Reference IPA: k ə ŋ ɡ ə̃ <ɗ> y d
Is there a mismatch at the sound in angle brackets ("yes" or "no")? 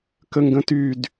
yes